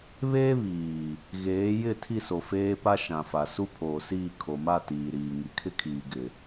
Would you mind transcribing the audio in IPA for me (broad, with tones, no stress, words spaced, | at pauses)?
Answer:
βeː˦βiː˨ | ɣeː˨˦ jɪ˦˨ tʰi˦˨so˨ feː˦pa˦ ʃã˨fa˨ su˦pʰoː˨siː˦˨ kʰo˨ma˦˨ tiː˨ɾiː˨ ŋi˨kʰɪ˦kʰiː˨ ɡɪ˨